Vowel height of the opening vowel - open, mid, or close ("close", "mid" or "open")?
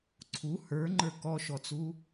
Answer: close